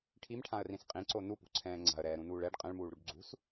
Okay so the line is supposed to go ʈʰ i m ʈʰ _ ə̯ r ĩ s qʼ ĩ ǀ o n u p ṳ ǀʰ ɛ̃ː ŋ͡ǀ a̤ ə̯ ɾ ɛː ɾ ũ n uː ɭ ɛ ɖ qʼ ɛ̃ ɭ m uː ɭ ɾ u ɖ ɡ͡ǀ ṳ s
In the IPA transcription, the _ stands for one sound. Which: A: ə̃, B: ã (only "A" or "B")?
B